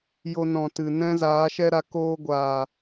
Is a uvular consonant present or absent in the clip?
absent